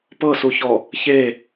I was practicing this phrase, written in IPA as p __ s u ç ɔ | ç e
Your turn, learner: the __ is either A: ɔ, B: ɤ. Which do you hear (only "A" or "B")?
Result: B